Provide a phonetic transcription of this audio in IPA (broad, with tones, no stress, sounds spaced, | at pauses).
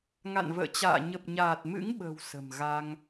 ŋ a̰˧˨ n v ə̰ː˧˨ t͡ɕ a̰ː˧˨ ɲ ə˨˩ p̚ ɲ aː˨˩ t̚ m ɨ̰˧˥ ŋ ɓ ə̤˨˩ w s ə̤˨˩ m ɣ a˧ ŋ